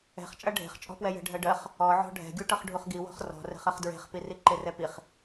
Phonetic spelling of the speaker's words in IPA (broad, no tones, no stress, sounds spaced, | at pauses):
ɛ̤ χ t͡ʃʼ ɐ ɖʱ e̤ χ t͡ʃʼ ɔ̤ p w ɛ j ɛ̤ ɖʱ ɜ ɖ ɜ χ | ɔ ʕ ɔ̤ ɖʱ ɛ̤ ɡʲ u ʈ ʌ χ ɖʱ u χ ɡ i w ɔ̤ χ r ɔ̤ r ɛ̤ χ ɜ χ d ɹ e̤ χ p i r i ǃ e r ɛ p i χ